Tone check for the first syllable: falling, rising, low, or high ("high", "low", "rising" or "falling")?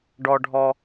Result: low